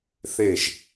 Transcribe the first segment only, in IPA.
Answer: θ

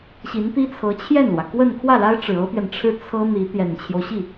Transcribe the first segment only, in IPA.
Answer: ɕ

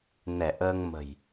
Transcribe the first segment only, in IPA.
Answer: n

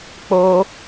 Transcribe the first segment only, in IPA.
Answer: k͡p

